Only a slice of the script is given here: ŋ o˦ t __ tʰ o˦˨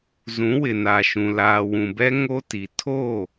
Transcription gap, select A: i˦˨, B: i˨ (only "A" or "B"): B